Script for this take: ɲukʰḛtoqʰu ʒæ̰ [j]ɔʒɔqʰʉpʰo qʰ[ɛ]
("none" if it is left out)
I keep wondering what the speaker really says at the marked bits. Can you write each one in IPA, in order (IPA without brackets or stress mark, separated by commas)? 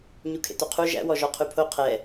w, ɛ